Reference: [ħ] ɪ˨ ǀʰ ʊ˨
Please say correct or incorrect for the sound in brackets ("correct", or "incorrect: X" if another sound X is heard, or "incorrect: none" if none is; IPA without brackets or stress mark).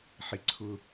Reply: correct